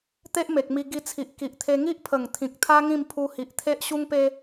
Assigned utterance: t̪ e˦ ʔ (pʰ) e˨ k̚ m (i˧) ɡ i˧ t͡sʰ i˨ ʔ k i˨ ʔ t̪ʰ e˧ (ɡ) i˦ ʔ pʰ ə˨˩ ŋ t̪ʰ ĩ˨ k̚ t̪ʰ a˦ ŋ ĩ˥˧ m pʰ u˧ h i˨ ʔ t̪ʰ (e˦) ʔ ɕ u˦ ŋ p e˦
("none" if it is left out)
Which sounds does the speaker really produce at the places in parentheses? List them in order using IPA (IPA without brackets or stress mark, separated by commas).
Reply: m, i˧, ŋ, e˦